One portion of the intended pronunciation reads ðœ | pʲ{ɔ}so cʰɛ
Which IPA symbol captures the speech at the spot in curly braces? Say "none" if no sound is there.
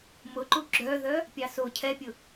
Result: ɑ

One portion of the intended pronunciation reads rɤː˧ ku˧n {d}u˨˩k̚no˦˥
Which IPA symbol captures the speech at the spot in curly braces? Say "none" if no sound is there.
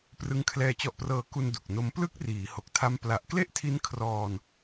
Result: d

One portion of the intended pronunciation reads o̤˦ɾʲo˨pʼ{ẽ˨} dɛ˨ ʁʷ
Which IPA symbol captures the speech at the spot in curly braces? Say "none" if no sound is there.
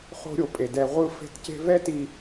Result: e˨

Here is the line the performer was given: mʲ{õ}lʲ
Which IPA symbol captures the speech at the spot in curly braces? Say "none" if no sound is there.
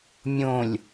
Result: õ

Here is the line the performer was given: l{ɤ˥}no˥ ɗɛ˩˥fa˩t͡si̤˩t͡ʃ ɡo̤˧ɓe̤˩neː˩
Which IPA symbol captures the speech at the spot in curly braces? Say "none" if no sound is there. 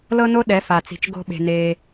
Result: ɤ˥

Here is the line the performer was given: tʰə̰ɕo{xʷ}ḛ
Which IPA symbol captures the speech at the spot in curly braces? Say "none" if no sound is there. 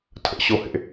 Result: h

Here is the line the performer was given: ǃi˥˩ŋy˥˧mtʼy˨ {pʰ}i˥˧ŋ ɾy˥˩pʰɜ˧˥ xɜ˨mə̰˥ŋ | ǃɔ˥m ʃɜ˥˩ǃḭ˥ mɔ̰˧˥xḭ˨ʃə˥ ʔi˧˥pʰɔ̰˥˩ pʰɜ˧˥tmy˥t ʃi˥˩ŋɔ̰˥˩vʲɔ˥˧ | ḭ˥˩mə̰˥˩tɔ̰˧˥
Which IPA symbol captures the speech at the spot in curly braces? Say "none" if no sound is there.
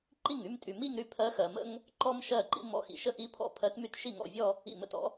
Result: m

